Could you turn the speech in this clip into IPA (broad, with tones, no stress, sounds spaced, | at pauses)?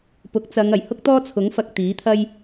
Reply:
p ʊ˨˥ k̚ t͡s ɐ˨˧ ŋ ɐ˨˩ j h ʊ˥ k̚ t̪ ɔː˥ t͡sʰ ʊ˨˥ ŋ f ɐ˧ k̚ t̪ iː˨˥ t̪ʰ ɐ˥ j